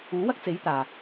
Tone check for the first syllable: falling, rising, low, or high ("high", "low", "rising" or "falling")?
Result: rising